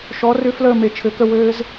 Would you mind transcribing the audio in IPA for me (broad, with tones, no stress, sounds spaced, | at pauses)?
ʃ ɔ˨˥ r ʏ˦ f l əː˥˨ m e˨˩˦ t͡ʃʰ ɘ˨˩˦ k ə˥˨ w ɘː˦ z